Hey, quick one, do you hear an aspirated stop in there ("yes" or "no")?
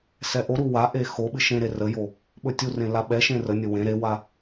no